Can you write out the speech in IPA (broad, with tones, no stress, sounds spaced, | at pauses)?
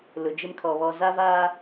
l ʊ˨ d͡ʒ ɪ˦ m kʰ ɔ˨ β ɔ˨ z a˦ v aː˦